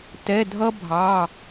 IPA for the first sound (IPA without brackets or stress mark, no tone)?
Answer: t